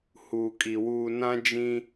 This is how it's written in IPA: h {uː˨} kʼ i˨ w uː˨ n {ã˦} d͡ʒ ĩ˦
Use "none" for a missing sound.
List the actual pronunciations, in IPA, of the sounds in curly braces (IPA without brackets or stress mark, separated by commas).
uː˨, ã˦